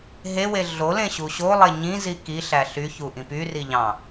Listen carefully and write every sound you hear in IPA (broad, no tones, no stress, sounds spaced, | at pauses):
ɦ e w e ɮ o l ẽ ɕ u ɕ o lˠ e ɲ ĩ z i k i ɬ æ ɬ y ç u ʔ ĩ p y r i ʎ ɑ̃